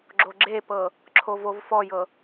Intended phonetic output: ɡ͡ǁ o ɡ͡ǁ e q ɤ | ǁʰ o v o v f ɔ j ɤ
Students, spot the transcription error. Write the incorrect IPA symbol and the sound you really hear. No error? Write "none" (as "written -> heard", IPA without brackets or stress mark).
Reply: q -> p